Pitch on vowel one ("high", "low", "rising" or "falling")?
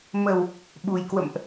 low